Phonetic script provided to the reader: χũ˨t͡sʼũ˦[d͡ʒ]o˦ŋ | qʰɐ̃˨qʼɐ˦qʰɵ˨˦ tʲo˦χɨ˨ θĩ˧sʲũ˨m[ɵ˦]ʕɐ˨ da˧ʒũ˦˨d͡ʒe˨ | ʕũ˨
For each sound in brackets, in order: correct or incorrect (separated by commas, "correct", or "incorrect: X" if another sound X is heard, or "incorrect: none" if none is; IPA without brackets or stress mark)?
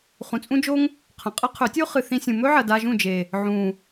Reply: correct, correct